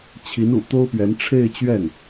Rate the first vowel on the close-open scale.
close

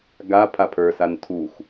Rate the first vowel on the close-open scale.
open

